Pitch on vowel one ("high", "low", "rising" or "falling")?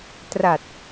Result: low